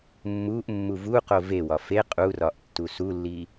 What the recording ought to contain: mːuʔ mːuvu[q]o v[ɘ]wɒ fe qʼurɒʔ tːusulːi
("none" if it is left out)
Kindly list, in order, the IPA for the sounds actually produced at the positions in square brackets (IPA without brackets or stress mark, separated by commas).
q, e